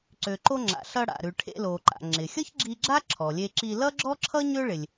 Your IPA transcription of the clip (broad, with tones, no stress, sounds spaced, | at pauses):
ǀ ø˩ ǃ o˧ ŋ͡ǁ a̰˩ ɬ ʌ˧ ɽ a̰˩ ɾ ʉ˩ ʈʰ ḛ˧ l o˩ ǃ a̰˩ ŋ͡ǁ ɪ˩ xʲ ʌ˥ ç ɡ͡ǁ i˧ ɡ͡ǁ a˥ ǁʰ ɔ˩ lʲ e˧ ǁ i˧ l ʌ˥ ɡ͡ǁ ɔ˥ ǁʰ ʌ˥ ɲ ø˥ ɭ ɪ˩ lʲ